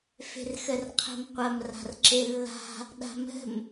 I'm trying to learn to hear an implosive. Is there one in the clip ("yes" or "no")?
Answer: yes